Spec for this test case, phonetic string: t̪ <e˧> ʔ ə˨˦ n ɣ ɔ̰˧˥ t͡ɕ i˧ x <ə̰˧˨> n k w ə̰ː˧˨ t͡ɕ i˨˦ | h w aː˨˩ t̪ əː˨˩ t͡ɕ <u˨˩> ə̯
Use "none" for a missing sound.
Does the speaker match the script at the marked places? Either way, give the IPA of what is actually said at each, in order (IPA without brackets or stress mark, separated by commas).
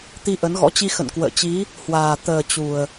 i˧, ə̰˧˨, u˨˩